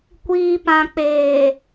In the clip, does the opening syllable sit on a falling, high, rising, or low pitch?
low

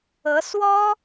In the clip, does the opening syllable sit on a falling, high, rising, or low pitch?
rising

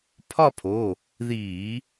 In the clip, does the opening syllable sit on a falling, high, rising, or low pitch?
falling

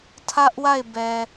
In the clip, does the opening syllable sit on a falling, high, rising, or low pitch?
high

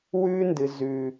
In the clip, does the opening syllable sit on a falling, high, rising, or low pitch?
high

